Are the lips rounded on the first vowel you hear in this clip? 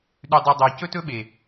yes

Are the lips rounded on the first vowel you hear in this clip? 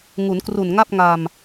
yes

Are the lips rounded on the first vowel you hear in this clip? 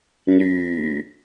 yes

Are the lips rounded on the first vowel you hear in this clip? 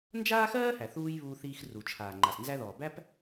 no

